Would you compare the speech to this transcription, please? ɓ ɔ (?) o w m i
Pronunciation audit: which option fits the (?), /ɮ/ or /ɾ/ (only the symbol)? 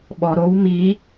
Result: ɾ